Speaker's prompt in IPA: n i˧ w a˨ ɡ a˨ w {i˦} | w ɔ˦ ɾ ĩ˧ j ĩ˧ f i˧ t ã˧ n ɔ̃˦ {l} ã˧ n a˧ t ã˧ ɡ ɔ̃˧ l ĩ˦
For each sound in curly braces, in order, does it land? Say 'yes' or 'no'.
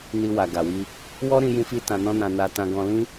no, no

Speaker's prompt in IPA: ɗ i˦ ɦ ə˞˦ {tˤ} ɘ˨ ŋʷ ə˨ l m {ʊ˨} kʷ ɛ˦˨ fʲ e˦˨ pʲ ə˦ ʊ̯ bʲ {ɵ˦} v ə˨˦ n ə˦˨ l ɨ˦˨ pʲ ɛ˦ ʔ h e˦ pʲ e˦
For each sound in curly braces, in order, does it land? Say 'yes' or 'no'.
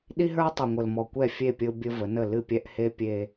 yes, no, no

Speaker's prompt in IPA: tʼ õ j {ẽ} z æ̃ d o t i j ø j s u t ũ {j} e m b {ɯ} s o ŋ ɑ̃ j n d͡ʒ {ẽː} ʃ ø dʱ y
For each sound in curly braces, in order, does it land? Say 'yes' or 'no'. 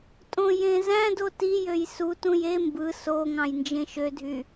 yes, yes, yes, no

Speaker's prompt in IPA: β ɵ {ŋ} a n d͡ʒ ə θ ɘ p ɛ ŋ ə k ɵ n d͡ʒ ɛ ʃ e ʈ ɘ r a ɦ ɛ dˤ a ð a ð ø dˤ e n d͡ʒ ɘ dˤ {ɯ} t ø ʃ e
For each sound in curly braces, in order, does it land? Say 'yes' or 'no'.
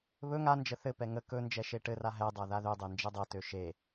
yes, no

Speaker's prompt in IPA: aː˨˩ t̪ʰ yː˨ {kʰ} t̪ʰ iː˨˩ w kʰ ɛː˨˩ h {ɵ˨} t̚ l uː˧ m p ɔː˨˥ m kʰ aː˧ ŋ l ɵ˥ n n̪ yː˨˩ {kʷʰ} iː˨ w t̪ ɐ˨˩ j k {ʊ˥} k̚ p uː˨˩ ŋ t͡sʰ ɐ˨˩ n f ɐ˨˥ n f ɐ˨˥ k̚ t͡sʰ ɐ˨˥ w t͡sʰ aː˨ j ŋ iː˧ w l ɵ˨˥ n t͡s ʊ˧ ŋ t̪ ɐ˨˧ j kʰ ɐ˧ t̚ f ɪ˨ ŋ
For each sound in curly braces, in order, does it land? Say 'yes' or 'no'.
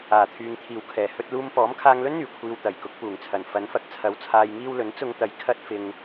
no, no, yes, no

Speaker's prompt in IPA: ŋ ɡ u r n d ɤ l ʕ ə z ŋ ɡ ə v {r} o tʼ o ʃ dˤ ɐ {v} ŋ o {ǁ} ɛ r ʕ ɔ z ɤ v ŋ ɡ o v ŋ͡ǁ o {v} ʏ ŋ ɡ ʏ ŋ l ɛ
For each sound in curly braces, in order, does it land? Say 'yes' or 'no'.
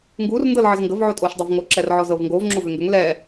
no, yes, yes, yes

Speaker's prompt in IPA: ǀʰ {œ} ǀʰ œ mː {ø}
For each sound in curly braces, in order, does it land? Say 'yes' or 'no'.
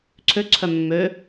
no, yes

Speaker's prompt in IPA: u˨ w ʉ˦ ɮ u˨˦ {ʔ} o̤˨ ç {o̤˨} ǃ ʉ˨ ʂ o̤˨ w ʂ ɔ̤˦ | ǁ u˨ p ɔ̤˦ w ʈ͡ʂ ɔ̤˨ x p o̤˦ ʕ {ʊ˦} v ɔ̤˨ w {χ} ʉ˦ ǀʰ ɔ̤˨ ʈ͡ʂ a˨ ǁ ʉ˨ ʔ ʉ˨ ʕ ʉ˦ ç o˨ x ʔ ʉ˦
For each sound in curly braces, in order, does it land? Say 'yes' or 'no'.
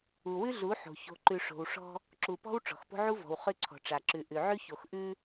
no, yes, no, yes

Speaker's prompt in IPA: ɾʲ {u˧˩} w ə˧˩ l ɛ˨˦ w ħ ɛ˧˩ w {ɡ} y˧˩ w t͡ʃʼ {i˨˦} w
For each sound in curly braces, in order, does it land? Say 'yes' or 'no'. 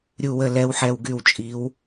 yes, yes, yes

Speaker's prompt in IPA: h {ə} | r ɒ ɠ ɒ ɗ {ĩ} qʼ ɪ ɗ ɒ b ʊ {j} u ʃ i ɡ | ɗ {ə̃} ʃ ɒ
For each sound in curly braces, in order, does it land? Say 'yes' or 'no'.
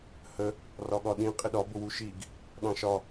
yes, yes, no, no

